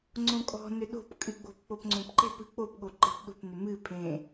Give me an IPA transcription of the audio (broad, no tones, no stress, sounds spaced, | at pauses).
ŋ͡ǀ õ kʼ ɔ̤ n ʏ ɗ o̤ p kʼ ɨ ɡ͡b o̤ p k͡p o p ŋ͡ǀ õ p ǃ e̤ p ɨ k͡p o p ɠ o ǃ e̤ p ɗ o̤ p n ʏ m ɨ pʰ ẽ